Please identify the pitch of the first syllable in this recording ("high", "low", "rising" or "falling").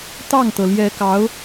falling